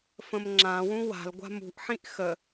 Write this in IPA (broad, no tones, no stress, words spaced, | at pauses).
fə̃mŋ͡ǁãwũ wa̤lɡʷa̤ mṳʔħĩʔ xə